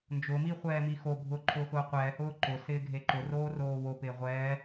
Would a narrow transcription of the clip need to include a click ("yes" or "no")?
yes